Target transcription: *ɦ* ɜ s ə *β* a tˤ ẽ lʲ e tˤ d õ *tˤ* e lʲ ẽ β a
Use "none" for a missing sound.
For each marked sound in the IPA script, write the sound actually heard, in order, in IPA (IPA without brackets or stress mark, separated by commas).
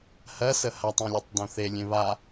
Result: h, h, θ